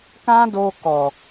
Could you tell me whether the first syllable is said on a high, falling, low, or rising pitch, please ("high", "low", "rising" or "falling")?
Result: high